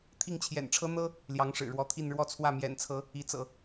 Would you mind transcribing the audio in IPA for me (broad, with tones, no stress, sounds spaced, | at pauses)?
t̪ʰ i˥˩ ŋ t͡ɕʰ j ɛ̰˨˩ n ʈ͡ʂʰ ɤ˥ n̪ ɤ˥ | l j ɑ˧˥ ŋ ʂ ɻ̩˨˩ ɻ w ɔ˧˥ t̪ʰ i˥˧ n ɻ w ɔ˥˧ t͡sʰ w ä˥˩ m j ɛ̰˨˩ n t͡sʰ ɤ˧˥ | i˧˥ t͡s ɤ̰˨˩˦